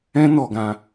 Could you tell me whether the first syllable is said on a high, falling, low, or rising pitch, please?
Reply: high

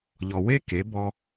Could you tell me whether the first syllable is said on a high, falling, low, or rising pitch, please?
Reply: low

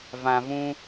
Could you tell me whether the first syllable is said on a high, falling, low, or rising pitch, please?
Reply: low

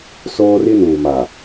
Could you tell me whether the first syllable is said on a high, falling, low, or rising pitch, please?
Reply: high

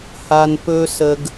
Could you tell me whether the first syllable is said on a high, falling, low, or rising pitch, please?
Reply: low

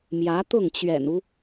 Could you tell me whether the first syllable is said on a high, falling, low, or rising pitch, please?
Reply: rising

